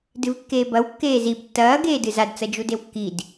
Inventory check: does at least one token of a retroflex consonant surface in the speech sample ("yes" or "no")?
no